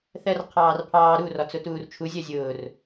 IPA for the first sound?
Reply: θ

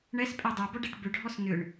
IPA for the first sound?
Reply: ɳ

